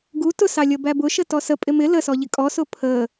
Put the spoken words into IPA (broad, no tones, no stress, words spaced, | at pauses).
ɡu tʊsɑlʲʌbæ bʊʃətɔ səpʼɪ mɪ ləsɔʎɪ kʼɔsʊ pʰə